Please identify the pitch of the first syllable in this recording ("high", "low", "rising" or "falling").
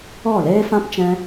falling